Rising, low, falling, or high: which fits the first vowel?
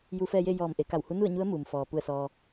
rising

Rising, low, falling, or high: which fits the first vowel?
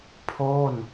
falling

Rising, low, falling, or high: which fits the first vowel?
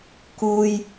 low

